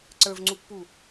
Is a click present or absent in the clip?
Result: present